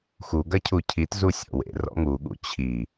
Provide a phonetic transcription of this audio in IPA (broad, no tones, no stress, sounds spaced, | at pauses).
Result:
x u ɡ ɐ cʰ u cʰ i t z u sʲ ɔ̰ w ḛ r ɔ̰ ŋ u ɠ ṵ t͡ɕʰ i